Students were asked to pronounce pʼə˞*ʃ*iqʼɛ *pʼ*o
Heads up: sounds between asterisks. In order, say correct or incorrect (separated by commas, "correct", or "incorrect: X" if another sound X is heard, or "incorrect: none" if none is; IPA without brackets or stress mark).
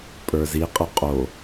incorrect: z, incorrect: qʼ